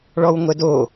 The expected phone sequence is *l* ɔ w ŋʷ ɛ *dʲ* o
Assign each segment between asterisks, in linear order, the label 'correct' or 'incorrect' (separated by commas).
incorrect, incorrect